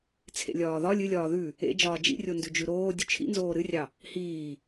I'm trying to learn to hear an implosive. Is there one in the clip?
no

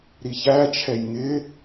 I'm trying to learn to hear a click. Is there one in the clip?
no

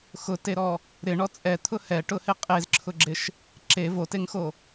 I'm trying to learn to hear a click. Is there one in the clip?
yes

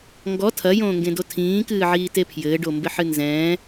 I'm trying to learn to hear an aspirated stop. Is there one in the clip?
yes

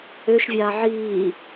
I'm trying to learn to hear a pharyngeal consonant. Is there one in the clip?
yes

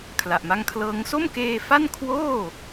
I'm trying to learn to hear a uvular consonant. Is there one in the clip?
no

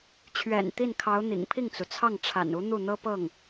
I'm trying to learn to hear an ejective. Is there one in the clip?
no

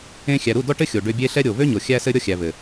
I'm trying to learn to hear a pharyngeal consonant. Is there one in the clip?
no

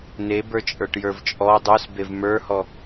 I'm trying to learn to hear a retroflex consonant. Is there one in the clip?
yes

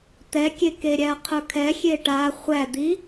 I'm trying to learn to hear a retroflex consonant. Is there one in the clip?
yes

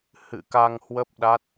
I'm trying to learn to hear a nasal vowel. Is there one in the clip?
no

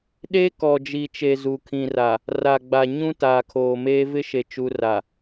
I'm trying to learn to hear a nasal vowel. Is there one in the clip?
yes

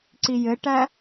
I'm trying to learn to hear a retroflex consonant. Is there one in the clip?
yes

